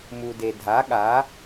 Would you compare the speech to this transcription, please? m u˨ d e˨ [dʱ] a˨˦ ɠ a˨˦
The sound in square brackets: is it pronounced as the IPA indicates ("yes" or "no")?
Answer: yes